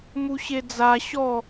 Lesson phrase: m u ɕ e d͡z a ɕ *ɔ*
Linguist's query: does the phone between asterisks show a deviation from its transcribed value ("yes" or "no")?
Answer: no